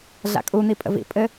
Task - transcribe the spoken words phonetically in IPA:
ɮ a̰ kʼ u n̪ i pʼ ə̰ v ḭ pʼ ɘ

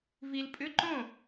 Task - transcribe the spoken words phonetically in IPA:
v i˨ l pʼ ʏ˧˥˧ ǃ õ˥˩

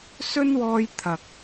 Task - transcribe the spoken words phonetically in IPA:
s ɵ˥ n w ɔː˧ j t̪ʰ ɐ˨ k̚

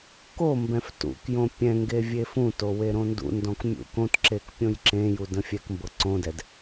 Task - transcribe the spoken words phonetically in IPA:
k o m b ɛ̃ f t ṵ k j õ pʲ ɛ̃ ŋ ɡ e vʲ e f ũ t o w e ɾ õ n d ṵ n d ɔ̃ k mʲ ṵ k õ t ǁ e k pʲ õ j ǁ ẽ j u d ə̃ fʲ ɛ k m b ɤ ǀ õ d ɛ d

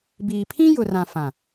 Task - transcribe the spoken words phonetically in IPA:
b iː˨ pʰ ĩ˦ j ʊ˨ r ã˨ f ã˨

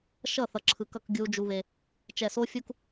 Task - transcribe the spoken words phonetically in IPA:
ʃ ʌ˦˨ θ ʌ˨ ǁʰ ɯ˨ k ʌ˦˨ k ɡʲ u˦ d͡ʒ u˦ β e˦ | t͡ʃ ɛ˨ s o˦ fʲ u˦ k

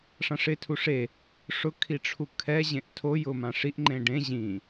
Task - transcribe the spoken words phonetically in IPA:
ʂ ã ʂ ɪ tʰ u ʂ e | ʂ ʊ kʰ i ʈ͡ʂʰ u kʰ ɛ ʑ ẽ ʔ tʰ o j ʊ m ã ʂ i ʔ ŋ͡ǃ ẽ ɖ ẽ ʑ ĩ

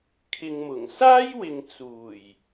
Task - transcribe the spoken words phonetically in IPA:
kʰ ɪ˨ ŋ m ʊ˨˩ ŋ s aː˥ j w ɪ˨ ŋ t͡s uː˨˩ j

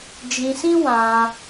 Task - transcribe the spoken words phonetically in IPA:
d͡ʒ ĩ˧ s ĩ˦ w ã˧

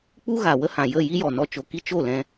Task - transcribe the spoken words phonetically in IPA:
k͡p u˦ ɣ a˨ w ə˦ h ã˨ j ə˦˨ j i˦ j ɔ˨ n ɔ˧ t͡ʃ o˨ k i˦ t͡ʃ o˦˨ l ɛ̃˧

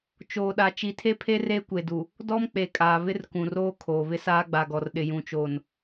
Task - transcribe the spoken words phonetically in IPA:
t͡ʃ oː˨ ɗ a˨ t͡ʃ i˨ tʰ e˦ pʰ e˦ r eː˦ kʷ e˨ d u˨ | d ɔ˦ m k͡p e˨ kʼ aː˨ β ɪ˦ r k ũ˨ r oː˦ kʰ oː˨ β ɪ˦ s aː˦ ɡ͡b a˨ ɡ ɔ˨ r ɗ ɪ˨ j ũ˨ t͡ʃ oː˨ n

